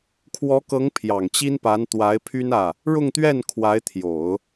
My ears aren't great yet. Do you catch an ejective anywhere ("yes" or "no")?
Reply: no